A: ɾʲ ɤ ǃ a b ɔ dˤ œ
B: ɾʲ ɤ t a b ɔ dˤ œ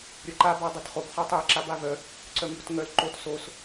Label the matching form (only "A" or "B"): A